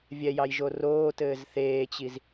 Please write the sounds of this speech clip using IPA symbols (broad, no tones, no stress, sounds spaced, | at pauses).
vʲ ɛ j ɑ j ʒ o r oː t ɘː z θ eː t͡ɕ i z